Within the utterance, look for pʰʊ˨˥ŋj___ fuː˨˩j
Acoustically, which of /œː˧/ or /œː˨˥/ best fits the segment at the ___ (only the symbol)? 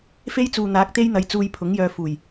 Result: œː˧